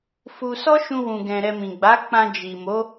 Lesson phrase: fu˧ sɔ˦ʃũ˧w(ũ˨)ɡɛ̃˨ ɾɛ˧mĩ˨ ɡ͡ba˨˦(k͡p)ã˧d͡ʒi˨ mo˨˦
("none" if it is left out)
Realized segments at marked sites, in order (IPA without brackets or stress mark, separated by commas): ũ˨, k͡p